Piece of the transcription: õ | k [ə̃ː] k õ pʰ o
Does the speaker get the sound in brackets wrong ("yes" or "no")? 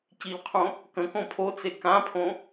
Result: yes